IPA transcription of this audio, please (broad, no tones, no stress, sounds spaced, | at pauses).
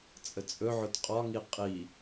t͡sʼ ə t͡sʼ ɵ ʕ ʊ t qʼ ɒ ŋ i qʼ i